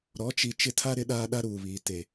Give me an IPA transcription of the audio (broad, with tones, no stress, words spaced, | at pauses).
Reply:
ɾɔ˨˦t͡ʃi˨ t͡ʃɪ˦ tʰa˦ɾɪ˦ ɗaː˦ɗa˦ɾuː˨βiː˨ te˨